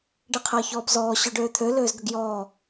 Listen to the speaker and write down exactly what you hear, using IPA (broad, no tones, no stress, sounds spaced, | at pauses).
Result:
ɖ e qʰ ɜ ç ɔː b z ɔː ɕ ø ɖ øː t̪ʰ ø l øː z ɡ ə ɡ j ɔː